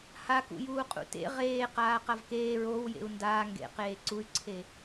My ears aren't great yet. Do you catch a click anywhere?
yes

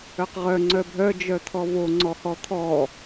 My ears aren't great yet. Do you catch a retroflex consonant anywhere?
no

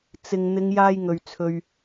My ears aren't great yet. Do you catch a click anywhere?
no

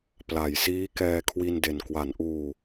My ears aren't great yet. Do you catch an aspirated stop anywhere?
yes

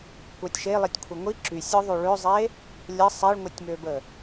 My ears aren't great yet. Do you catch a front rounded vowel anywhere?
yes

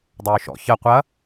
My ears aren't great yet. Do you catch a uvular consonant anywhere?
yes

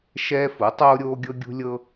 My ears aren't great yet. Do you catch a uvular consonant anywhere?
no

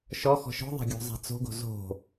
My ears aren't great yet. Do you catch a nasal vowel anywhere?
no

